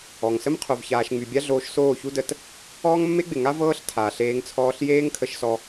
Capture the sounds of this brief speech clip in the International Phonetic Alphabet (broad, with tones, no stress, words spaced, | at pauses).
ɔ˨ŋsə˦m qʰo˨vçaː˨ʃŋ͡my˨ bʲa˦ɮoː˧ʃ soː˦˨çu˦də˧t | ɔː˦ŋmːe˦ɡ͡bɪ˨ŋa˦ vɤː˦ɬtʰaː˨ɬeː˧ŋt͡sʰɔː˧ɬ jeː˦ŋkʰə˧ʃsɔ˧